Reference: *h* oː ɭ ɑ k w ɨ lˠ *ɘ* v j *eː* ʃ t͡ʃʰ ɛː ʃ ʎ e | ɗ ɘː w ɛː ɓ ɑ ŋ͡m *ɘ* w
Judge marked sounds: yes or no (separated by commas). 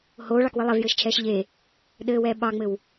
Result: yes, no, no, yes